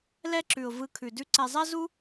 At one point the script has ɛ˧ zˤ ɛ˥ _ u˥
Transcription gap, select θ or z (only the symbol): z